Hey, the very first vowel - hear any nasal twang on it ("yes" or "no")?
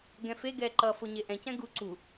yes